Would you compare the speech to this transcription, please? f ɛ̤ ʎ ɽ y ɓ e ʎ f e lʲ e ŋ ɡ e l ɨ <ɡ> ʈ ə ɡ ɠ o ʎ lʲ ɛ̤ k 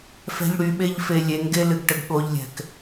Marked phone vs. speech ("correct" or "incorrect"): correct